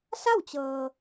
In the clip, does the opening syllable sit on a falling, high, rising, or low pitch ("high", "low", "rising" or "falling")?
falling